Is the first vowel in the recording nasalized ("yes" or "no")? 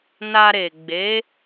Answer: no